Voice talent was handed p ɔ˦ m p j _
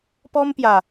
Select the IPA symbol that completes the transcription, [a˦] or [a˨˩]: a˨˩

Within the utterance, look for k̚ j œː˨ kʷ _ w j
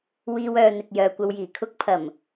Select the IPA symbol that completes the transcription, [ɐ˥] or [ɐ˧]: ɐ˧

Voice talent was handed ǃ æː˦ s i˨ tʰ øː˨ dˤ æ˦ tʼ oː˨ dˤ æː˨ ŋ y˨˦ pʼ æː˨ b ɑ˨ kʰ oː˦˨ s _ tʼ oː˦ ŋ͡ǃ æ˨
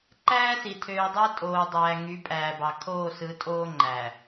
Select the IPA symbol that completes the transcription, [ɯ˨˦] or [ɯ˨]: ɯ˨˦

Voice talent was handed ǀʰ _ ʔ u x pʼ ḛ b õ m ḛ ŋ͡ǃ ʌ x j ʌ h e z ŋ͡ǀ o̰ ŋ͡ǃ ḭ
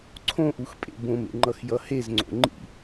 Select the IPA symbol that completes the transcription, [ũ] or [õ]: õ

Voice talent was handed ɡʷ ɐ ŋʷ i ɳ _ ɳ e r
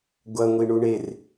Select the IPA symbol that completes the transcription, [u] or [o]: u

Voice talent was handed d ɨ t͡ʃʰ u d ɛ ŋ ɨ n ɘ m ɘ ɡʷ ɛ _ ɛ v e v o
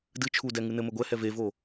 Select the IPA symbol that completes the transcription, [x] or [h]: h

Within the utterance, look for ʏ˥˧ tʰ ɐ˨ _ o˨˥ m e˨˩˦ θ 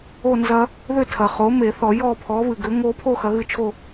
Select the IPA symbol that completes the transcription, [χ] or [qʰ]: χ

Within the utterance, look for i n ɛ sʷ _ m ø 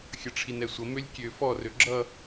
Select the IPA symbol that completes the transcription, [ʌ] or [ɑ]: ʌ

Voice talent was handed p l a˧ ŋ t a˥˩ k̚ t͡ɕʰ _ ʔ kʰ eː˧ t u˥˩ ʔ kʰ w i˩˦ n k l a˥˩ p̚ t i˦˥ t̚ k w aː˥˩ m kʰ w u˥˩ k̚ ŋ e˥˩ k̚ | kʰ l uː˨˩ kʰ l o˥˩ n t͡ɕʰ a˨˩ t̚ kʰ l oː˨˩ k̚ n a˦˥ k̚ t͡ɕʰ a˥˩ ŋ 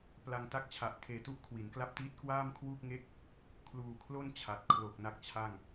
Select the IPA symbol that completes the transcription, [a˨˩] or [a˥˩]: a˨˩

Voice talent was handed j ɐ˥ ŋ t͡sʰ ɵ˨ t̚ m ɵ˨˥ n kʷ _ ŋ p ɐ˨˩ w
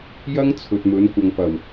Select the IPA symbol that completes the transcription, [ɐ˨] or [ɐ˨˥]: ɐ˨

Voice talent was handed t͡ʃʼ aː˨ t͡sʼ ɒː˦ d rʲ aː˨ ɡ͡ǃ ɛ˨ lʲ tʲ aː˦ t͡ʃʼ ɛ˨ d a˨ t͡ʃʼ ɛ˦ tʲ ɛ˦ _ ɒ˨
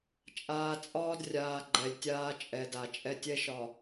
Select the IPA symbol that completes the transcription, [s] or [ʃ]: ʃ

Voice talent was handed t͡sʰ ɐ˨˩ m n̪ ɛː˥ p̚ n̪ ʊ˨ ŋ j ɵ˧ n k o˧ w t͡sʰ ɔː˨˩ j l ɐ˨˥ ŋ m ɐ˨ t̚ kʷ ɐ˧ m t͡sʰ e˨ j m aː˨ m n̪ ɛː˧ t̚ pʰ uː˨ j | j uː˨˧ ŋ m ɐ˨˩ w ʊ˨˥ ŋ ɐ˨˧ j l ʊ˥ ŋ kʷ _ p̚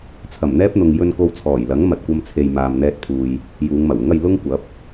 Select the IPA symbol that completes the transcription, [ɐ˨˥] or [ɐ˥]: ɐ˨˥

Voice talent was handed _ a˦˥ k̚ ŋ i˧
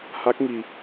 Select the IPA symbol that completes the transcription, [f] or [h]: h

